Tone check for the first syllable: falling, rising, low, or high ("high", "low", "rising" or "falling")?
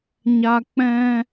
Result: high